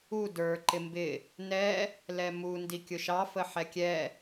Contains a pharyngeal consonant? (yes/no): yes